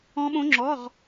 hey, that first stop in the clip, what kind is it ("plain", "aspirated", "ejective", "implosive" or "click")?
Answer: implosive